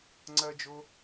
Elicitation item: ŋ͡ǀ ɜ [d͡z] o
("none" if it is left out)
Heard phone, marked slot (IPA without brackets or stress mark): d͡ʒ